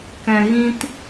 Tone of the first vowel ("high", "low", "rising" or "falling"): low